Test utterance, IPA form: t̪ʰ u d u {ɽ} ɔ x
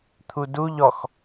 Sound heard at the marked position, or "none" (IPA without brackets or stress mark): ʎ